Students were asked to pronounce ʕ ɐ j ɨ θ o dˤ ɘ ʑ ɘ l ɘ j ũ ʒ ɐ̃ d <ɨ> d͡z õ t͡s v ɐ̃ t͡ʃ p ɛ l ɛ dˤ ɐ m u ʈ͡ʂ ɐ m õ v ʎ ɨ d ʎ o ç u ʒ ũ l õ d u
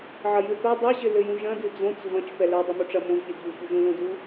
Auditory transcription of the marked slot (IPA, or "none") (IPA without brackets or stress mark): ɨ